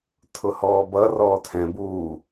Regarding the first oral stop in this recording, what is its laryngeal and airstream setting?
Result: aspirated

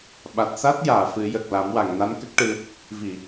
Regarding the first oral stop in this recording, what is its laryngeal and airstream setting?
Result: implosive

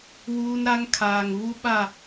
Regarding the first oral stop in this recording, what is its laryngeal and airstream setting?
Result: aspirated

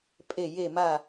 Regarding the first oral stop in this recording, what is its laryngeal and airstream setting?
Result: ejective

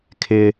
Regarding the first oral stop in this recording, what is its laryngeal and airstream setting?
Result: aspirated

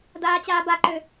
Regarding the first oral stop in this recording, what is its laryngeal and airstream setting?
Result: plain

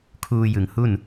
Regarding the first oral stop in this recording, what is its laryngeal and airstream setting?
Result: aspirated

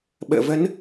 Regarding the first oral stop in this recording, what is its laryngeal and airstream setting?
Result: implosive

